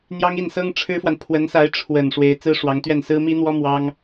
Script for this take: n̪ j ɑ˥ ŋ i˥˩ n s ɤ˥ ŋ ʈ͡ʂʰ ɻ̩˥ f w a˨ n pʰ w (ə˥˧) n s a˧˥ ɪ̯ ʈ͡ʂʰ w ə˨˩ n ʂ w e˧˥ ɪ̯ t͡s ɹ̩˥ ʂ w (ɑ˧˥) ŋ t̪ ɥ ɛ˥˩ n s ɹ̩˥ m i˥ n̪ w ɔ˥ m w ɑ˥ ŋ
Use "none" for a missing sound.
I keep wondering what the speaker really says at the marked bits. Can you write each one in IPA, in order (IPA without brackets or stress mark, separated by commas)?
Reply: ə˧˥, ɑ˧˥